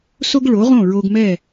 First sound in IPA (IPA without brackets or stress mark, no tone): s